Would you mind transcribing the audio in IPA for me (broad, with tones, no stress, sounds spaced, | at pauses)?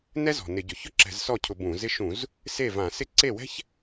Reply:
n ɛ˥ z ɔ̤˨˩ n ɪ˧˩˧ ɟ ʊ˨˩ ç ʊ˥ ǁ ɛ̤˧˩˧ z s ɔ˥˩ cʰ ʊ˧˩˧ b ũ˧˩˧ z ɪ˥ ʃ ũ˧˩˧ z | s e˥˩ v ã˧˩˧ s ɪ˥ ǀ e˥˩ w ɛ̤˥ ç